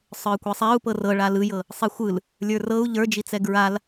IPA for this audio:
sˤə˞kʷɛsˤɛu̯pɤ rɤɭa lɯjɤ | sˤixʷɯl | lʲə˞rɤu̯ ʎə˞d͡ʒit͡sɛ ɡɹal

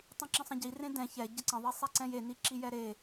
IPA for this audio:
tˤĩǁə̃sˤə̃ɟi rẽdɛ̃ çɛ ɟəǀə̃ ðˤisˤɛǀɛ̃je niǁijɛɾe

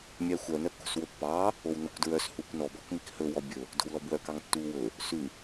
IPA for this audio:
mʲæxʷœ nœkːo̤swɵpːɑː | ownokʷdɹœs huːkʷnɔ bɔkmikhɵ wɔbʲɵ | do̤wlɔbwœ kɑŋtːuːwɵ | sʉ

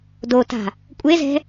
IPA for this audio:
dota̤ | kʷʼezɛ̤

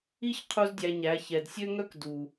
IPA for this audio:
i˦ç qʰu˦zdʲæ˧ɲæ˨˦ çɛ˨dsʲø˦ŋœ˦k du˨

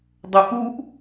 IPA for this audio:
dˤoʔuʔ

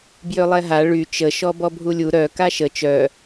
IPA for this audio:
bjølˠɛɦa ɭy t͡ʃə ʃɔbɔbʱulʲu ɾœ kaʃə t͡ʃœ

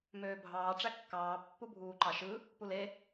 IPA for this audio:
møːbʱɑː ʈ͡ʂækːɑː pːubʱuːǃɑʃɯ | pule

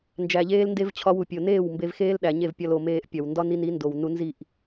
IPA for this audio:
nd͡ʒæ˨ʎeː˧lnde˧v t͡ɕʰɒ˧wu˨pʲo˨neː˦˨w mbe˧vxeː˦l ɗæ˨ɲe˦˨vpʲɒ˧l o˨meː˧ʔpʲɒ˨w ndɒ˦ni˧ni˨˦ ndo˨w nu˧ nzi˦˨ʔ

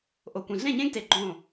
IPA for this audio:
ʔo˨ kʷẽ˨ɮẽ˦˨ɲẽ˦ɡ te˧ɡ͡ǃõː˦˨

